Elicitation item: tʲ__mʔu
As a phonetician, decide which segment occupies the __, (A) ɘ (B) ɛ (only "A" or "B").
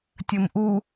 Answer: A